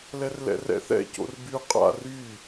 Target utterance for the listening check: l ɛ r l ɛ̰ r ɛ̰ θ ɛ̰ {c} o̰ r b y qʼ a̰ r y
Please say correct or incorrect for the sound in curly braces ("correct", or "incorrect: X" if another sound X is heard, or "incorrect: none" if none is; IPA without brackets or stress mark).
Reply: correct